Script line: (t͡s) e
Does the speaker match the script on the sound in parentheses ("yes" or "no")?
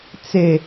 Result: yes